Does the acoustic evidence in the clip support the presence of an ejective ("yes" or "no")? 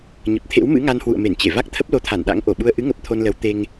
no